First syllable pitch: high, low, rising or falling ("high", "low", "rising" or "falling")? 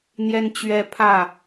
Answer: high